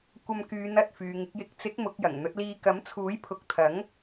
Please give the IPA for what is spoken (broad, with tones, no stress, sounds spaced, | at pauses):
kʷ ɐ˧ m k yː˨˧ n ɐ˨ t̚ f yː˨˧ ŋ ɪ˧ k̚ j ɪ˨˥ k̚ t͡s ɪ˨˥ k̚ m ʊ˨˥ k̚ j ɐ˨˩ ŋ n̪ ɵ˨˥ t̚ l iː˧ k ɐ˨˥ m t͡sʰ uː˨˥ j pʰ ʊ˨ k̚ t̪ʰ ɐ˨˥ ŋ